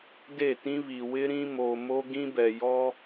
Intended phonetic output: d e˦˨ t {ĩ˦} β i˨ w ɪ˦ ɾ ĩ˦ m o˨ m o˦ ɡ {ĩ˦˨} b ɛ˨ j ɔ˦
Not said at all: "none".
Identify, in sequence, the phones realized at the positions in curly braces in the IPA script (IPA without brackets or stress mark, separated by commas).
ĩ˦, ĩ˦